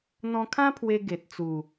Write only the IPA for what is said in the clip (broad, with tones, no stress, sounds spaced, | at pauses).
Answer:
n̪ ɔ̃˧ kʰ ã˦ pʰ w e˧ ɡ e˨ t̚ t͡s u˨˩